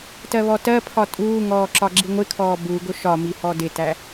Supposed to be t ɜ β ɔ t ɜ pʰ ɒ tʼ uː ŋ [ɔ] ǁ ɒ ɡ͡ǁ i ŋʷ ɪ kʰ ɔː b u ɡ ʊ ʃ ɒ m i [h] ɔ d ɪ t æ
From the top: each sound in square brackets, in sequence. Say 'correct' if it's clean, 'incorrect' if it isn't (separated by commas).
incorrect, correct